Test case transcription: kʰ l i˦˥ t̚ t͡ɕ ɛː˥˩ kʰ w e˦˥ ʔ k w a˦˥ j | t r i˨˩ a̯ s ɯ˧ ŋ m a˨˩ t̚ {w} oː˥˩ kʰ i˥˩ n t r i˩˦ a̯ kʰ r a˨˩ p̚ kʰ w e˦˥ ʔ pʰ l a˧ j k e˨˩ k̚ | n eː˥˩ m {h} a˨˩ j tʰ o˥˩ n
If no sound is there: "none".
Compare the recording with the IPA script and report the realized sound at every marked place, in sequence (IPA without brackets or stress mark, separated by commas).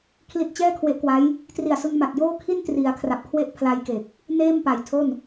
j, p